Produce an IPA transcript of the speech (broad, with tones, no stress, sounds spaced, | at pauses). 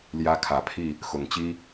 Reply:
l j ä˦ kʰ ä˨˦ pʰ i˥˨ | x ʊ˨˦ ŋ t͡ɕ i˦